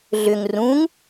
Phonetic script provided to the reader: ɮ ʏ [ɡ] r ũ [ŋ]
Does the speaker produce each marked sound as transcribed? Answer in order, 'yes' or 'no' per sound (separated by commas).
no, yes